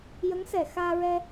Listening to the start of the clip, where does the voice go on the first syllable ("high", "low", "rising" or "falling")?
rising